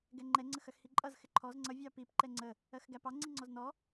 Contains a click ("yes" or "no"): yes